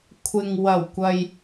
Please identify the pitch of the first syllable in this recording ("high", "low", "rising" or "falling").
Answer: low